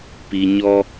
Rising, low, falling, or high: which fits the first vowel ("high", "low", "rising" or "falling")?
low